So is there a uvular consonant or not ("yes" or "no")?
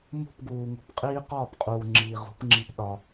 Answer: yes